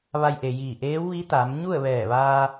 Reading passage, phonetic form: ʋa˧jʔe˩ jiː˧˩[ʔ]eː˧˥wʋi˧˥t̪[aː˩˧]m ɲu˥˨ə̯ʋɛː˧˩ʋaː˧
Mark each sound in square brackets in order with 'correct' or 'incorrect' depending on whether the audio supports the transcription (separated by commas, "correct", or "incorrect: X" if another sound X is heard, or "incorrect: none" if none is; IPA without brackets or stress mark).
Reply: correct, correct